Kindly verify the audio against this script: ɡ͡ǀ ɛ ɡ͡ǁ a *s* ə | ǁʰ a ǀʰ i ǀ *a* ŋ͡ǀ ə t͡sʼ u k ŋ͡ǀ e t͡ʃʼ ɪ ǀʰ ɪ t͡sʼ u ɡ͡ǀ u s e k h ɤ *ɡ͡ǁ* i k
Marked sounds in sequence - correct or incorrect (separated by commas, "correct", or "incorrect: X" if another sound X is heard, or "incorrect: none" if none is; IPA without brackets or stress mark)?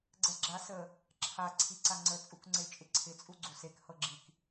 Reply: correct, correct, correct